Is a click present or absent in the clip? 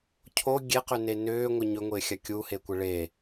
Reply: absent